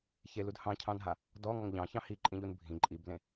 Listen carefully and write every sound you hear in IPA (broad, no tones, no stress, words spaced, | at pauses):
çelud hɑ̃cʰɑ̃nɦa | dɔŋɔŋ ʎɑ̃çɑ̃ hiǃʼĩʎun bʱĩ ǃʼiblẽ